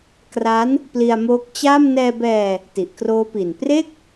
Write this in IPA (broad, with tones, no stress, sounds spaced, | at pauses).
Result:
k r a˦˥ n | p l i˧ a̯ m oː˦˥ k̚ t͡ɕ a˥˩ m n ɛː˧ b ɛː˧ | t i˨˩ ʔ k r oː˦˥ p i˨˩ n p r e˥˩ k̚